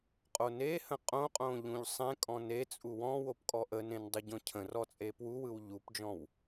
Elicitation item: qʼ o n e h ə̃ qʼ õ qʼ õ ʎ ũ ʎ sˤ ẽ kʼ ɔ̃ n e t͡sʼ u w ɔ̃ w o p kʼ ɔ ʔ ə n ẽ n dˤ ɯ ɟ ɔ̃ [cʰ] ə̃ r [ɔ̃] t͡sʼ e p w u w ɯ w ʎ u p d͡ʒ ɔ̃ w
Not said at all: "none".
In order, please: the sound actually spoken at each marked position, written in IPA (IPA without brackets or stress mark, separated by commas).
cʰ, ɔ